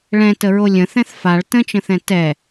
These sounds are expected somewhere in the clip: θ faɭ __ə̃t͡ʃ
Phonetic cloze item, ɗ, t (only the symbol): t